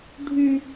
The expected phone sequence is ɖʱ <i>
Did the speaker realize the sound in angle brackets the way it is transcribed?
no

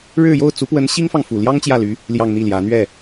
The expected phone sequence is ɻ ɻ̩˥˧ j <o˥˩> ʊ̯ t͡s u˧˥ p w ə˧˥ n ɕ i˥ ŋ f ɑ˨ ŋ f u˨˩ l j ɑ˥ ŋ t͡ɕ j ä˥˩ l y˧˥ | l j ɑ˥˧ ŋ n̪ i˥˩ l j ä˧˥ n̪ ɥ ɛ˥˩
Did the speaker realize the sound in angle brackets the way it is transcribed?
yes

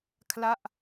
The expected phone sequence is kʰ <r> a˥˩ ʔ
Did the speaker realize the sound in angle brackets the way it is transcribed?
no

